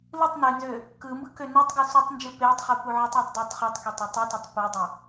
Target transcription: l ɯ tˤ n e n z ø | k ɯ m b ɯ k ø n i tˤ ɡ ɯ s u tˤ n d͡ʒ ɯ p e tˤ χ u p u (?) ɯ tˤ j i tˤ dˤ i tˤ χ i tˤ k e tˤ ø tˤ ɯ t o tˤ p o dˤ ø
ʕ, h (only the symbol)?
ʕ